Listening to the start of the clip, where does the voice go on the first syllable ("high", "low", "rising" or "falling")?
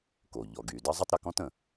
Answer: low